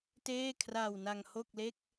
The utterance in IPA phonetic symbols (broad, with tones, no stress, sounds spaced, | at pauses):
t eː˥˩ kʰ r aː˧ w n a˧ ŋ h o˥˩ k̚ l e˥˩ k̚